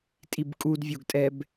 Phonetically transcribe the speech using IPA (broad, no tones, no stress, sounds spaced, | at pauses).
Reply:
tʼ i b kʼ u d vʲ o ɡ tʼ ɛ b